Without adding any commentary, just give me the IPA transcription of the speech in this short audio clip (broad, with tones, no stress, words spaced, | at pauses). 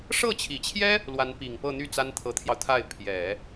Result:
ʂɤ˥˩t͡ɕʰi˨˩t͡ɕʰjɛ˥ | lwa˧˥npi˨˩ŋpɤ˥˧n̪y˥˩ t͡sa˥nt̪ʰɤ˧˥t̪ʰjɑ˧ʊ̯t̪ʰa˥˩ɪ̯ pʰjɛ˨˩˦